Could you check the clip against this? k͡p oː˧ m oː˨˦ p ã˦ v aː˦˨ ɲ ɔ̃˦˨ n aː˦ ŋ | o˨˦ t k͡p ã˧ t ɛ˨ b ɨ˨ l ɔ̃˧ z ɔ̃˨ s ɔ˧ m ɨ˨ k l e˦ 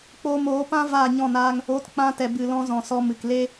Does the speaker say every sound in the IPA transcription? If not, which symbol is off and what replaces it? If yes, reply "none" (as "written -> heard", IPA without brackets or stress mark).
none